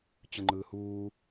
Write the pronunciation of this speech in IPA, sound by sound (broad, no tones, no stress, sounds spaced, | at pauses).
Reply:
t͡ɕ ɯ ŋ͡ǃ ɯː h uː